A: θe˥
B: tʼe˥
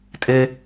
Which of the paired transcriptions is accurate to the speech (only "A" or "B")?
B